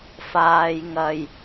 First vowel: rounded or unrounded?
unrounded